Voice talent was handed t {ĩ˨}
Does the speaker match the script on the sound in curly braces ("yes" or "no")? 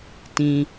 yes